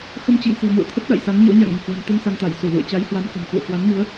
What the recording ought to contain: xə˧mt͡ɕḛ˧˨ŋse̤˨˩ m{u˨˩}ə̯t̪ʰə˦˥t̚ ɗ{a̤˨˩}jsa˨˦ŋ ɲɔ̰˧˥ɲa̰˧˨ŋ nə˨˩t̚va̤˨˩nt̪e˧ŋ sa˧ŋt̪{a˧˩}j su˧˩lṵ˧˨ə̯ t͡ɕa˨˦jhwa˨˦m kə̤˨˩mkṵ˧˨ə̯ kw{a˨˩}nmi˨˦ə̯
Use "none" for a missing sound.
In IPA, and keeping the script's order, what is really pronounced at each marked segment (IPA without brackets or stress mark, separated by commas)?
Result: ṵ˧˨, a̰˧˨, a˧˩, a˨˦